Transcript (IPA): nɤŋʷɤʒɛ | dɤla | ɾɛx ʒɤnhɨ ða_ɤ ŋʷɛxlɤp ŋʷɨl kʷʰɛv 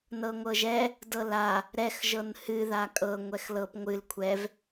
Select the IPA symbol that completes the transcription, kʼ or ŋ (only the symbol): kʼ